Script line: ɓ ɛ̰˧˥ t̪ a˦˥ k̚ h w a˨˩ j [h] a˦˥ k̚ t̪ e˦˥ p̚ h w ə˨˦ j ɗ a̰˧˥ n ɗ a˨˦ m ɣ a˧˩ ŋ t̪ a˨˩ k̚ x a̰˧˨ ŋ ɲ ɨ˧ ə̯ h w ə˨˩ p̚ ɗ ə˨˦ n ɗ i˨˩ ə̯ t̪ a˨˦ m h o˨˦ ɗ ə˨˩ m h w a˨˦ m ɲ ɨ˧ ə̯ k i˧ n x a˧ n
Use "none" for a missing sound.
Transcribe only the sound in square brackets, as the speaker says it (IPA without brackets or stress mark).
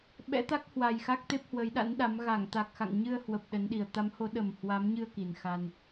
x